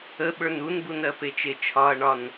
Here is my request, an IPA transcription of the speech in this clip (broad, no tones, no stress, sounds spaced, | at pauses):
ə ɓ ə˞ n u n b u n ɜ p e t͡ʃ e t͡ʃʰ ɒ ɐ̯ ɳ ɒ n